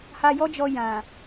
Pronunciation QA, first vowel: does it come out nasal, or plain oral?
oral